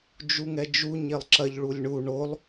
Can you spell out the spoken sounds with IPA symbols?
d͡ʒ u ŋ ɛ d͡ʒ u ɲ e lˠ ǁ ɐ ʎ ɭ u lʲ ɳ u ɳ o lˠ

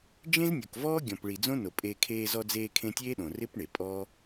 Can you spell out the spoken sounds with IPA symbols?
d͡ʒ ẽ˦ z nʲ o˨ k v ɔː˦ ɡʲ ɔ̃˨ p ɭ i˨ d͡z õ˦ n o˨ pʼ eː˧ kʰ eː˧ z ɔ˧ d͡z eː˧ kʰ ẽ˧ tʲ eː˦ ɗ õ˨ r ɪ˦ p ɳ e˨ pʼ ɔː˦

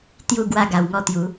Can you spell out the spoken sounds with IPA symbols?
t̪ j u˦ ɡ w a˥˧ ɡ a˧ w ŋ ɔ˦ t̪ j u˨˦

